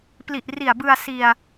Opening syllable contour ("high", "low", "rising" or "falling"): low